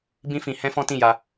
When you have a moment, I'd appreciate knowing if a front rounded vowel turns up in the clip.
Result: no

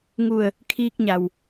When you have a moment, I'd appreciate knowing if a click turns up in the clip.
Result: no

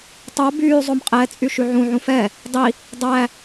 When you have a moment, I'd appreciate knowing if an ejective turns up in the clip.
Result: yes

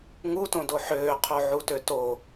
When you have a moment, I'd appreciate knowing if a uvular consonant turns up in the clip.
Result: yes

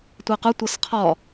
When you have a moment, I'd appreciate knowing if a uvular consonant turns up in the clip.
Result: yes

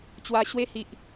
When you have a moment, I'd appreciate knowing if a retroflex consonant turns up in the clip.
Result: no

